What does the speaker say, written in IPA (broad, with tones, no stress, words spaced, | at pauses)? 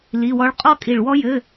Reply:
li˧˥˧wɔ˥ɭ qʼɔ˥kʼi˧˩ɭwɔ˥jɘ˧˥˧